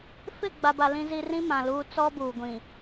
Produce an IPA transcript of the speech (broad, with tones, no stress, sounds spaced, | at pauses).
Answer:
f ɪ˦˨ ɡ͡b a˨ b a˨ l ĩ˦ z i˦ r ĩ˦ m ã˨ l uː˦ t͡s ɔ˦ b uː˨ ɡʷ ĩ˨